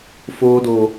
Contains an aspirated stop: no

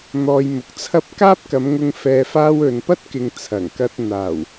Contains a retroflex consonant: no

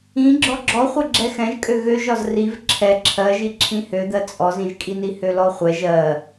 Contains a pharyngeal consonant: no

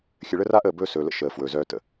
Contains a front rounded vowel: yes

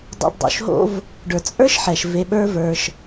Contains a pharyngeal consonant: yes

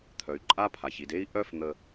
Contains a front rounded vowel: yes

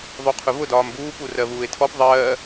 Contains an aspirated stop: yes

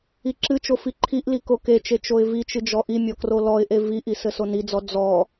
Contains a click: yes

